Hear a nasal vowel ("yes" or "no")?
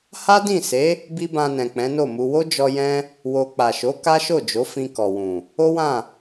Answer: yes